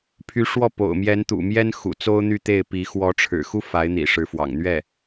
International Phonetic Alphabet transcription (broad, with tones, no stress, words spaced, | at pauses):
pʰy˧˥ʂwɔ˥˩ po̰˨˩ʊ̯ mjɛ˧˥nt̪ṵ˨˩mjɛ˥nxṵ˨˩ t͡so˥ʊ̯n̪y˥˧t̪e˥˩ɪ̯pi˧˥ xwɔ˧˥ʈ͡ʂʰɻ̩˨˩xu˥ fa˧˥ɪ̯n̪ḭ˨˩ ʂɻ̩˧˥fwɑ̰˨˩ŋn̪ɥɛ˥˩